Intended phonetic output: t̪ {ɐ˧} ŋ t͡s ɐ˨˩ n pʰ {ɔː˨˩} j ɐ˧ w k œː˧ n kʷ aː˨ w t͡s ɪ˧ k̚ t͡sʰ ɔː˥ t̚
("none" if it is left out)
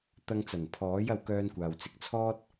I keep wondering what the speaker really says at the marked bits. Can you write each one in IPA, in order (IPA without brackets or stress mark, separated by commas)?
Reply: ɐ˧, ɔː˨˥